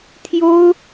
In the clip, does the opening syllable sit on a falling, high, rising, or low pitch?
high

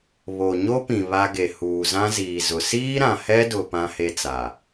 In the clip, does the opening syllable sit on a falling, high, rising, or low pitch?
low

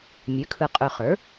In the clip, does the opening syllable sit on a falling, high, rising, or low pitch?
rising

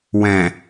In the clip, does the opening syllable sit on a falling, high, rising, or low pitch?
low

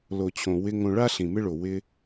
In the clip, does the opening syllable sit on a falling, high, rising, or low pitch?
low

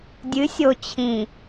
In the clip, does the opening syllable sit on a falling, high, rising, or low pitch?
rising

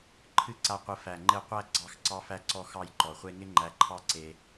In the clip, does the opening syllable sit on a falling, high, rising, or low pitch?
high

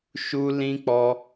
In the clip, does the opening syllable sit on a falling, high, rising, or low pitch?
high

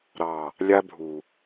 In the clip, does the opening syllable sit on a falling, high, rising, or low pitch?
low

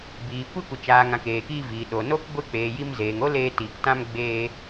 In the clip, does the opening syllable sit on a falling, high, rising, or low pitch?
low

